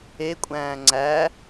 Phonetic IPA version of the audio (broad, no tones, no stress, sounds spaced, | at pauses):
e kʷʼ æ̃ː ŋ͡ǀ æ